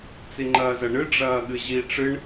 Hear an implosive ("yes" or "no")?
yes